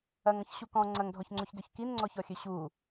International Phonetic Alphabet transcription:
ɐ ŋ ɔ̃ ç ɕ u k ɔ̃ ŋ͡ǀ ɐ ŋ dʱ ɔ ç ŋ͡ǀ o ç d ø ç k i n ŋ͡ǀ ɔ ç ɔ xʲ ø ɕ u

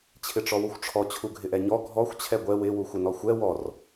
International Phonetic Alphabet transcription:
t͡ɕʰ ɪ ʈ͡ʂ ɔ w u xʷ ʈ͡ʂʰ ɔ t͡ɕʰ u ɡʱ ɪ ʔ ɛ ɲ ɔ ɡʱ ɔ xʷ t͡ɕʰ ɛ ɡʷ ɛ w ɪ w u xʷ ɪ n ɔ xʷ ɛ w ɔ r

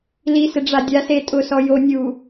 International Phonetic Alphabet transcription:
l i s ɪ ɖ͡ʐ a dʲ a s e tʼ ʊ s ɔ j o nʲ u

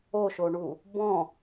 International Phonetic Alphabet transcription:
o ʃ o ɳ u | b ɔ̃

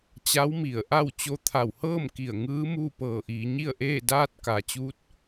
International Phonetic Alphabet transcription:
t͡ɕ a˧˥ w m i˧˩ ə̯ ʔ a˥˨ w t͡ɕ o˧ t̪ʰ a˧˩ w h ɤː˥˨ m k i˧˩ ə̯ ŋ ɯː˧˥ m uː˥˨ p ɤː˧˩ ʔ iː˩˧ ɲ i˥˨ ə̯ ʔ eː˥˨ d aː˧ t̚ k a˩ t͡ɕ uː˧˥ t̚

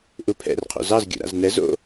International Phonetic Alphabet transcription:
ʔ u pʰ ɛ̰ r qʰ ṵ z ɑ z ɡʲ ṵ ɾ a̰ z n ɛ z o̰

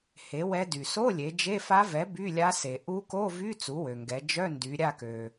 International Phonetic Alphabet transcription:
h e˩˥ w ɛ˧˥ d y˩ s o˧˥˧ lʲ e˩˧ d͡ʒ e˧˥˧ f a˧˥ v ɛ˩˥ b y˧˥˧ lʲ a˧˥ s e˩ ʔ u˧˥ k o˧˥˧ v y˧˥˧ t͡s u˩˥ w ø˩ ŋ ɡ ɛ˩˧ d͡ʒ œ˧˥˧ n d y˩˧ ɾʲ a˦˨ k ø˩

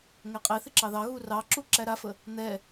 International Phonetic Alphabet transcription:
ŋ ɛ qʼ e θ ɪ ǁ ɑ ð ɑ ɣ u r ɑ ǁ u ǁ æ ɾ a f ə | n̪ ɛ

